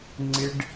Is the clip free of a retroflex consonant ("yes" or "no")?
no